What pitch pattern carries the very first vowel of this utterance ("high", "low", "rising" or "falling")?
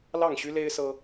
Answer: falling